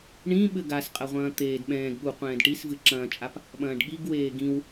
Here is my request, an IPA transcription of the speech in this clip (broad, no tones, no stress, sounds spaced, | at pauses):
ɳ ĩ ɓ ɘ ɡ a s qʼ ɐ ʁʷ ɐ̃ː t̪ eː d ɓ ɛ̃ː ɡ ɠ u qʷ ɛ̃ː d ʈ i s v ɨ ǁ ɐ̃ː t͡ʃʼ a p | ɓ ɐ̃ː ɖ ɠ i ɡ w eː ɡ ĩ w